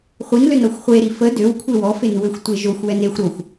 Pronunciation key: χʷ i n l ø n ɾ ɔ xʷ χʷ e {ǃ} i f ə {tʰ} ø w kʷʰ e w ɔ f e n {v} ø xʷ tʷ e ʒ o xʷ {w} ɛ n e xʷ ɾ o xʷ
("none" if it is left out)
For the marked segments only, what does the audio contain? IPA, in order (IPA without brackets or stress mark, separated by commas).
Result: ɾ, d, w, w